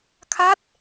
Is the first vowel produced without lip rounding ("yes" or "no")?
yes